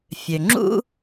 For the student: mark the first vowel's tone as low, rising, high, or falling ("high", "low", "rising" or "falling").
low